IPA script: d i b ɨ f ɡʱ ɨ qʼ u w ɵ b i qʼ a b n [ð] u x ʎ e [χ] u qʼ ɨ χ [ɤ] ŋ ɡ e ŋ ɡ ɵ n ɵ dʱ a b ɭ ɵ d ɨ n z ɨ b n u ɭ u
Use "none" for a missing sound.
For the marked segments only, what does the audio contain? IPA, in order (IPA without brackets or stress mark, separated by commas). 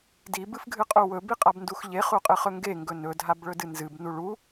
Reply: d, χ, ɵ